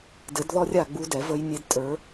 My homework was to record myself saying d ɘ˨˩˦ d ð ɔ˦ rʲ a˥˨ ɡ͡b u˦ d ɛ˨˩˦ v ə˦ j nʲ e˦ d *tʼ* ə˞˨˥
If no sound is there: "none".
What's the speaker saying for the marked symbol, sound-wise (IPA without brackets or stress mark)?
tʼ